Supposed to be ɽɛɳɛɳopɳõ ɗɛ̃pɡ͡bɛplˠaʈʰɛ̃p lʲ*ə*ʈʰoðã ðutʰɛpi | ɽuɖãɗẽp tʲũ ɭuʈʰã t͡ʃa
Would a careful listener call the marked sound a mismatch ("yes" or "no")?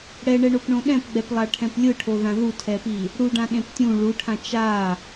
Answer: yes